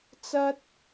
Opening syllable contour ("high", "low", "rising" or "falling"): high